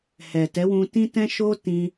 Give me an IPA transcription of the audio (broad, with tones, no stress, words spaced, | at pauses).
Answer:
hɛ˨tɛ˨˦wũ˧ tĩ˦tɛ̃˦ʃo˦ tĩ˧